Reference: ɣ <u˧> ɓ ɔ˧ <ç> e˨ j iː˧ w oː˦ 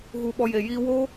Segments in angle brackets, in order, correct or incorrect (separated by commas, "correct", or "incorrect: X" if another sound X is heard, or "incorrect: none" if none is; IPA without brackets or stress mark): correct, incorrect: j